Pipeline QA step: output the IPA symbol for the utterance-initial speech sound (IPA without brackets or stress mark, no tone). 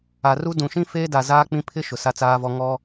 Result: a